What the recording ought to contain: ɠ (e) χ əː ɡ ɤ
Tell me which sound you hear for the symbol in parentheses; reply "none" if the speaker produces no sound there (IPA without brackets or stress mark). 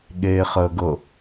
eː